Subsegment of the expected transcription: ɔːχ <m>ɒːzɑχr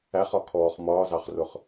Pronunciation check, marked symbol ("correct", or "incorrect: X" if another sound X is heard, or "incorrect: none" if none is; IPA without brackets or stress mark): correct